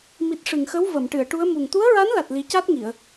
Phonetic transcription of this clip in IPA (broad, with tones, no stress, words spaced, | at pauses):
mi˨˩t̚ ʂɨ˨˩ŋxə˧˥w və˨˩˨mʈɨ˨˩˨ə̯ʈu˧˥ə̯mu˨˩ŋ t̪u˧˥ə̯ɹa˧˥nla˨˩t̚ li˨˩˦ca˦˥t̚ŋi˨˩˨ə̯